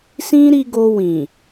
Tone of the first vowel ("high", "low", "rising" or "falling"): high